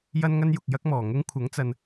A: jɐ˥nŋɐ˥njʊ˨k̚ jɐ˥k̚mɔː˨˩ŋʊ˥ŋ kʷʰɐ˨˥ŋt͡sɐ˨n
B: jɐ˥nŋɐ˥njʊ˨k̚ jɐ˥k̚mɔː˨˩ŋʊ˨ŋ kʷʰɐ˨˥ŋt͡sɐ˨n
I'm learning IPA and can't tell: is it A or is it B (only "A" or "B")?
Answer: A